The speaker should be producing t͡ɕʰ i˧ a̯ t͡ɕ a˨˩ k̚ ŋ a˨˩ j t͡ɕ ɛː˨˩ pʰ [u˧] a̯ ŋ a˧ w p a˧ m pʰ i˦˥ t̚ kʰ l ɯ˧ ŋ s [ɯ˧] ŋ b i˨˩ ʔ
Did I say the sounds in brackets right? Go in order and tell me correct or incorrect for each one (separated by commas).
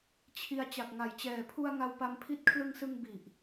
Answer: correct, correct